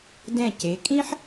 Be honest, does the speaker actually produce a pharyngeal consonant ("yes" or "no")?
yes